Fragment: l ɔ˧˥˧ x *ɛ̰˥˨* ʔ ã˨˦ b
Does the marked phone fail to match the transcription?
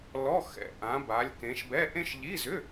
yes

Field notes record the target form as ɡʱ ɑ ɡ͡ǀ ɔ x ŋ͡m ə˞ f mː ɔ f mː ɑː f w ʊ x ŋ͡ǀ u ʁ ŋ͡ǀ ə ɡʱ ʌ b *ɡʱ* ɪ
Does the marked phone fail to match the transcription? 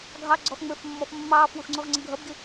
yes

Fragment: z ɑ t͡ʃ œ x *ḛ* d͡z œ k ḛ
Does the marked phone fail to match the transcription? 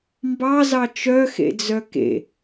no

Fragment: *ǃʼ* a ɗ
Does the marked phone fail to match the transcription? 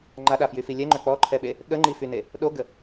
yes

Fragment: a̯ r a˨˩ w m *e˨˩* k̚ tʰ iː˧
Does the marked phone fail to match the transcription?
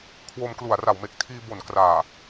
no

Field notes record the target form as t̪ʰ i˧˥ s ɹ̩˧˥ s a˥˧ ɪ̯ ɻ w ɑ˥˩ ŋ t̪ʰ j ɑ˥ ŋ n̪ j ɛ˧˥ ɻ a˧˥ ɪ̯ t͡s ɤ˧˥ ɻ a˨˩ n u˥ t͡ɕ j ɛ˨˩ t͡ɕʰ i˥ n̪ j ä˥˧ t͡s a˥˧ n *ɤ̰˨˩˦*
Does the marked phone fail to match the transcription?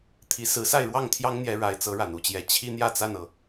yes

